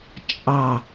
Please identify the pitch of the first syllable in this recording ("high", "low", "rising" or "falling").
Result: low